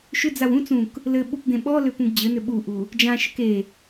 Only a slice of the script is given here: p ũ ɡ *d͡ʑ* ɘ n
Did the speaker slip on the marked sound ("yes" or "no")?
no